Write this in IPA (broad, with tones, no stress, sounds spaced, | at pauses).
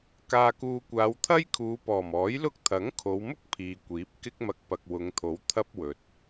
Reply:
k aː˨ k uː˨ kʷ aː˨˧ w t̪ʰ ɐ˥ j kʰ uː˨˧ p ɔː˨˩ m ɔː˨˥ j l ʊ˥ k̚ t̪ʰ ɐ˨˥ ŋ kʰ o˨˧ w m ʊ˥ k̚ pʰ iː˨ kʷ iː˨˥ p̚ k ɪ˥ k̚ m ɐ˧ k̚ p ɐ˨ k̚ w ʊ˨˧ ŋ t̪ʰ o˨˥ w t̪ʰ ɐ˥ p̚ w ɵ˨ t̚